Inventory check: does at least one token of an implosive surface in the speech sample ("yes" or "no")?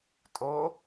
no